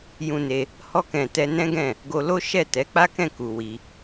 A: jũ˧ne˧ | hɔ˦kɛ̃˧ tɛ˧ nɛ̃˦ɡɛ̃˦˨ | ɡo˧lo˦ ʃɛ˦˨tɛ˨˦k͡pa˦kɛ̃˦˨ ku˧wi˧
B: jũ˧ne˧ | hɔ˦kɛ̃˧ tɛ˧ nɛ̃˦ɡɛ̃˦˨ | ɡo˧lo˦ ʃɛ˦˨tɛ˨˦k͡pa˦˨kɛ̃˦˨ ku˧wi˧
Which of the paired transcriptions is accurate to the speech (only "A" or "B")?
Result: A